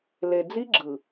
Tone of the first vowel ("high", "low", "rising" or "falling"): low